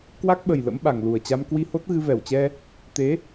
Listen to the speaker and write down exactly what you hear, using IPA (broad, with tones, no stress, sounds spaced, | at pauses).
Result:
k w a˦˥ k̚ ɓ ə˨˩ j l ə̰˧˥ m ɓ a˨˩ ŋ l u˨˩ ə̯ t͡ɕ a˧ m k w i˧ h o˦˥ t̚ ɣ ɨ˧ v ɛ˧˩ w t͡ɕ ɛ˧ | t̪ e˨˦